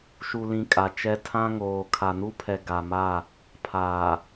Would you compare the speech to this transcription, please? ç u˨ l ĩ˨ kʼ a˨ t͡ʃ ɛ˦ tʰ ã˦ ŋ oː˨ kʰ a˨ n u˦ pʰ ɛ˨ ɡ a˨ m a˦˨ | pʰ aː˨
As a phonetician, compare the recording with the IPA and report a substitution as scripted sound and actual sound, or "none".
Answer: ç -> ʃ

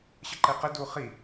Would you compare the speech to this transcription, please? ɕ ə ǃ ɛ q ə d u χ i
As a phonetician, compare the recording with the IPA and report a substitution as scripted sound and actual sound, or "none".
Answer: none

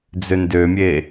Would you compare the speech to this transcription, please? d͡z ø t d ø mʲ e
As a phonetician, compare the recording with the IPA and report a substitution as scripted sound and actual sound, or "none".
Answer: t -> n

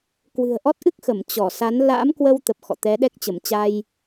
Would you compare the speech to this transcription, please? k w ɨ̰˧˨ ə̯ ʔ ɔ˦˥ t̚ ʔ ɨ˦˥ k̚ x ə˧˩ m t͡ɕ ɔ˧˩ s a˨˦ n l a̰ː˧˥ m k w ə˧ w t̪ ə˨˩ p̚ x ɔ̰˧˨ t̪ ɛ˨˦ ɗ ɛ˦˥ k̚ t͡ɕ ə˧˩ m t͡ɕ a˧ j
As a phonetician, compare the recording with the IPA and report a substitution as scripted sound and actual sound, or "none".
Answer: ɨ̰˧˨ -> ɨ̤˨˩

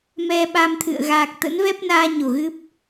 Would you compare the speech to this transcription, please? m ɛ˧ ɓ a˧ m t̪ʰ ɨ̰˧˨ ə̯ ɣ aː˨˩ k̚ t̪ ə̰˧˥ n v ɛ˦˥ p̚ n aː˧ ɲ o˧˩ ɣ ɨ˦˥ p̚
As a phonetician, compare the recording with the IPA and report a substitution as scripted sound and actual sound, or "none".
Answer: none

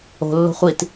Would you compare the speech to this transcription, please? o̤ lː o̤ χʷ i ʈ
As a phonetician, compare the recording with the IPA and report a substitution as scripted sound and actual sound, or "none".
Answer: ʈ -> t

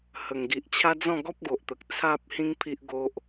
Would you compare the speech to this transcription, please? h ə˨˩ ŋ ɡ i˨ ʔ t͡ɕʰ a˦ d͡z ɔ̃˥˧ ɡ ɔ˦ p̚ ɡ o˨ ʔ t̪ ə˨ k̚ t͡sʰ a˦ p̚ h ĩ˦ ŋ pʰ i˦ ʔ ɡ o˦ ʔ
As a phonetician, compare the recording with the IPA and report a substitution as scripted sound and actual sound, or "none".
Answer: none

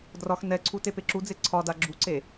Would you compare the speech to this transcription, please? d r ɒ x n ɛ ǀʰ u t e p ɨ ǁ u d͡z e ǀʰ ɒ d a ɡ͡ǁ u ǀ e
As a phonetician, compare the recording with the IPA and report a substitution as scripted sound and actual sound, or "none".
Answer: ɨ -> e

